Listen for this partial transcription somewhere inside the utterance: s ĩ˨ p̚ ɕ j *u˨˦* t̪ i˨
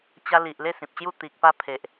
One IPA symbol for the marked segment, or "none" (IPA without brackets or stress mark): u˥˧